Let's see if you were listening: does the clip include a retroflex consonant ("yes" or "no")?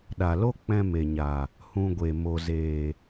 no